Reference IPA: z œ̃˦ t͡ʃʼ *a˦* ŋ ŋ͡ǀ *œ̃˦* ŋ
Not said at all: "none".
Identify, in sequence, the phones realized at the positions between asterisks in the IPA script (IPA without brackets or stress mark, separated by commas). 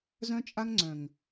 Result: a˦, œ̃˨